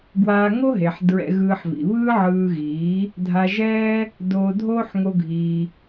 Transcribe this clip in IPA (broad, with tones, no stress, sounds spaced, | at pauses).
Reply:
ɡ w aː˧ ŋ o˦ ɦ e˨ ħ d ɹ ɛ̰˧ ɣ ɯː˧ ħ v ḭ˨ β ɯː˦ ʕ ɯː˧ ɣ iː˨˦ | dʱ a˧ ʒ ɛː˦ | d oː˧ dʱ oː˦ ħ ŋ o˧ ɡʱ iː˧